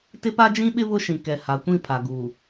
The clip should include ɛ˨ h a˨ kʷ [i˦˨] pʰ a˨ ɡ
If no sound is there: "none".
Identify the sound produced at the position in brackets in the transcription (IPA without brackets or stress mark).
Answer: ĩ˦˨